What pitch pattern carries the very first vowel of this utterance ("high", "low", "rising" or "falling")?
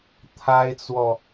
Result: high